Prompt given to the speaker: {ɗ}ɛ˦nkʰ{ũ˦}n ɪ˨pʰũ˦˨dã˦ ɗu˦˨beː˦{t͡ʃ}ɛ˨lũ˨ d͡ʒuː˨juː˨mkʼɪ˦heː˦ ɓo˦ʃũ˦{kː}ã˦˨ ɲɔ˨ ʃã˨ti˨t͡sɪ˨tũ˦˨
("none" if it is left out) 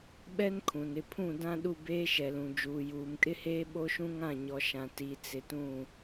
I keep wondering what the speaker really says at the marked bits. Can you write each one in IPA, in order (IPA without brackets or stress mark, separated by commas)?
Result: ɓ, ũ˨, ʃ, ŋ